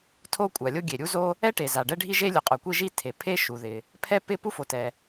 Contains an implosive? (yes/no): no